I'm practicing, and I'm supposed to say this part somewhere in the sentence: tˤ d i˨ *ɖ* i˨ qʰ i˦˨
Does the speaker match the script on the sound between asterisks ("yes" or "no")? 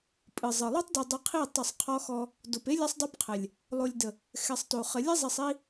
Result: no